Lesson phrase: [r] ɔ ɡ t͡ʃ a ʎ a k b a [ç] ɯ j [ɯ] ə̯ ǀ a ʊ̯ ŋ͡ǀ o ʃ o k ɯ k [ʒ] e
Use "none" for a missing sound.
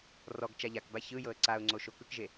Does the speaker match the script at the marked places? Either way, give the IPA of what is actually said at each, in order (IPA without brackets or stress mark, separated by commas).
r, ç, ɤ, ʒ